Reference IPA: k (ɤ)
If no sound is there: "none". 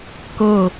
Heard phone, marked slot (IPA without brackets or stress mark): ɤ